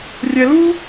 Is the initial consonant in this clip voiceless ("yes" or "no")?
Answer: no